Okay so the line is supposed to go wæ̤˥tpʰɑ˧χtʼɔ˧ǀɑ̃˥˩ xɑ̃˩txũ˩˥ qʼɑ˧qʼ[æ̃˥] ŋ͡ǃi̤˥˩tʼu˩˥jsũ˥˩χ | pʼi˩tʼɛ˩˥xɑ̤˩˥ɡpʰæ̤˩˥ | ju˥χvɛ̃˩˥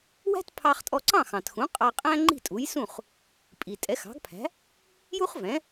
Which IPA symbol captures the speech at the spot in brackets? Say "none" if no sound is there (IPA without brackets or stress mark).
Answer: æ̃˥